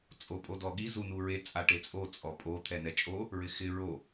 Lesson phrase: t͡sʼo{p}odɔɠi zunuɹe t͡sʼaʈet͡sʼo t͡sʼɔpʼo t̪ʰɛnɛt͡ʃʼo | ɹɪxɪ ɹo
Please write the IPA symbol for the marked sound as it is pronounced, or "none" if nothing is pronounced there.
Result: pʼ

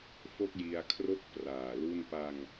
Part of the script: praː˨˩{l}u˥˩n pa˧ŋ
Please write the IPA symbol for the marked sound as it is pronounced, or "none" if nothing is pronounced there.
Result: l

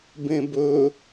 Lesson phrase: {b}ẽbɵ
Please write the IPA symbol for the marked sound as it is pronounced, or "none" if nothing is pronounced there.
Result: b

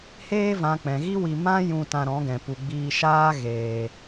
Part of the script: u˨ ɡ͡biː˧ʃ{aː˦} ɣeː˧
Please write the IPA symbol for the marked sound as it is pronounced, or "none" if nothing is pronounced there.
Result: aː˦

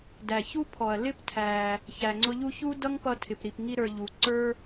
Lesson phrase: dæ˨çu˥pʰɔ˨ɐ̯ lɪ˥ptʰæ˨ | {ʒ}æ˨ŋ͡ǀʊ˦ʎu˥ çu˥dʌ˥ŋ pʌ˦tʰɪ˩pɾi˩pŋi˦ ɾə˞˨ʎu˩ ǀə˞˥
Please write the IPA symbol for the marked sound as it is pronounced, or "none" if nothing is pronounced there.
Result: ç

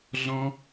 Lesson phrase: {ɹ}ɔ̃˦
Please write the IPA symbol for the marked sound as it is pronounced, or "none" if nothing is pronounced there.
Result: ɮ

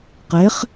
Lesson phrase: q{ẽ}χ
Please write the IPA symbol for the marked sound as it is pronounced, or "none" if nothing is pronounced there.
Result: e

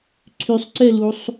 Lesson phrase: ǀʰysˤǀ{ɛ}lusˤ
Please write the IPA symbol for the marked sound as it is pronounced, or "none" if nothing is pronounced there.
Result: ɛ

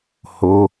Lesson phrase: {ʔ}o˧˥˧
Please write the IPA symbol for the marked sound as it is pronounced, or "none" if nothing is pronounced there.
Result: h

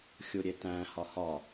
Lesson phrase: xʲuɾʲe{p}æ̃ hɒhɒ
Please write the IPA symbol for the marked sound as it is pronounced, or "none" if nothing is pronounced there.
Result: t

